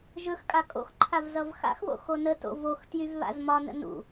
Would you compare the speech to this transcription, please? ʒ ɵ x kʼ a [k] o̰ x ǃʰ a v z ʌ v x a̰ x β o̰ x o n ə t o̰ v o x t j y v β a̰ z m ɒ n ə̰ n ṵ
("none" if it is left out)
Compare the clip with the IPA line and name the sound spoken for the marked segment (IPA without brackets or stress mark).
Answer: kʼ